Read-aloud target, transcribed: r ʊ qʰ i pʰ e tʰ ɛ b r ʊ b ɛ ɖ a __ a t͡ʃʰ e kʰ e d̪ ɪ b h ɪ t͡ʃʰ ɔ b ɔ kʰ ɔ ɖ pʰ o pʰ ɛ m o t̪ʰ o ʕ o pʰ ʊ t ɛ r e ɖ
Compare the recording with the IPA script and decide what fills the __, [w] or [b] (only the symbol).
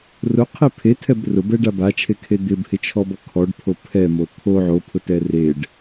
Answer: b